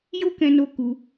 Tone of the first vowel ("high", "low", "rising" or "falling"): high